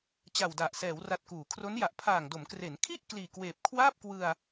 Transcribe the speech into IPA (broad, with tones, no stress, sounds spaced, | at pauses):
t͡ɕ a˨˩ w d a˨˩ ʔ s ɛː˩˦ w r a˨˩ t̚ k uː˩˦ kʰ r o˦˥ n j a˨˩ ʔ pʰ aː˨˩ ŋ d o˩˦ m k r e˩˦ n kʰ i˥˩ ʔ k l iː˨˩ k w eː˨˩ p̚ kʰ w aː˥˩ p̚ k w ɯ˧ a̯